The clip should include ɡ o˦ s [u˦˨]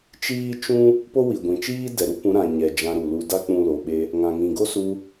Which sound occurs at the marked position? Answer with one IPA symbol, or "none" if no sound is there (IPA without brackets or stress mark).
u˧